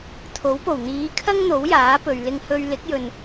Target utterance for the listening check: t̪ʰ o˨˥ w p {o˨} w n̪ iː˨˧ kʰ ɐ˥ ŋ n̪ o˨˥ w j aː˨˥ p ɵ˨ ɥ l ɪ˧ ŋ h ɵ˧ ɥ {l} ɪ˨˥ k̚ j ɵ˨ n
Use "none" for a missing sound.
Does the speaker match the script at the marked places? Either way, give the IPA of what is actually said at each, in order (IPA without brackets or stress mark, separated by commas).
o˨˩, l